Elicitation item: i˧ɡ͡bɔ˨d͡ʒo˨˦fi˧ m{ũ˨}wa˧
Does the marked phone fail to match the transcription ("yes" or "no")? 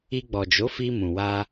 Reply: no